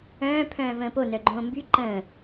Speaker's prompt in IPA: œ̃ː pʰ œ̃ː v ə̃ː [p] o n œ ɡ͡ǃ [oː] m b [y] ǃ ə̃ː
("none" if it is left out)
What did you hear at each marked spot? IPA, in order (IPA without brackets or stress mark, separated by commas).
p, õː, y